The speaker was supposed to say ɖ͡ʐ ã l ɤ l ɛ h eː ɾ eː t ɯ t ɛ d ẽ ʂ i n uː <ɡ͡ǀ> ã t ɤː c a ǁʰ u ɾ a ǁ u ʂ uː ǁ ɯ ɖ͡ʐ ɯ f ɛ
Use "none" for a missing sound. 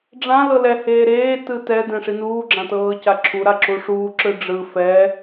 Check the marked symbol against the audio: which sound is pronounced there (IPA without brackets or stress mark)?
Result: ɡ͡ǁ